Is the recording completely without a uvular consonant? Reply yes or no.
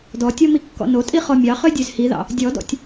no